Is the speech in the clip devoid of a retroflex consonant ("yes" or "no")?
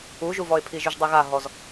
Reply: yes